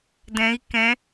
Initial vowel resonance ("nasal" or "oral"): nasal